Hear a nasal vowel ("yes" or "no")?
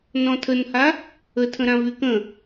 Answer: yes